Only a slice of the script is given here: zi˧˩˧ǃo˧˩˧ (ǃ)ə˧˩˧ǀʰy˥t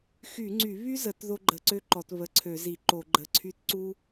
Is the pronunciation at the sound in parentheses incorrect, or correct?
incorrect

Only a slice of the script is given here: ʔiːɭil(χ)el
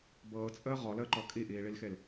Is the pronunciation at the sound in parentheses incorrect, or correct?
incorrect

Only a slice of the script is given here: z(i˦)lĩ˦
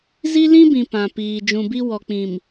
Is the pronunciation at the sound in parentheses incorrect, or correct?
correct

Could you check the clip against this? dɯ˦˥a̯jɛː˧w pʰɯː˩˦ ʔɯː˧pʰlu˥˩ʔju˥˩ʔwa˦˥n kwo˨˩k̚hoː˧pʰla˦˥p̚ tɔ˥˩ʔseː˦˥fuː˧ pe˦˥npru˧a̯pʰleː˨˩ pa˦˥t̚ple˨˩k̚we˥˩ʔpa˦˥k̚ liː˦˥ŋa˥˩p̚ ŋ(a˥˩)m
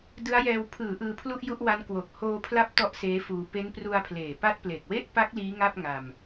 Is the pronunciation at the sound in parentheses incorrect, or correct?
incorrect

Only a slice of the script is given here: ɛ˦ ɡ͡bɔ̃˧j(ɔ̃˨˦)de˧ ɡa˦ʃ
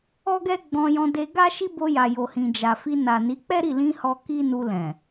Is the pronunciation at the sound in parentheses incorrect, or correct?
incorrect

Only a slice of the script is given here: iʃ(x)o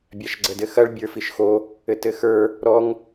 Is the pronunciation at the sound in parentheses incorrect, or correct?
correct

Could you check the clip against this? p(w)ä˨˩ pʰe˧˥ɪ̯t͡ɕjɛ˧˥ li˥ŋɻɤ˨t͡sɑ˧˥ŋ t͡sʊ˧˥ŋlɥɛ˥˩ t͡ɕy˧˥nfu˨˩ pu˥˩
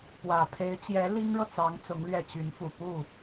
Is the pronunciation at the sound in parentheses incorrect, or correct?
correct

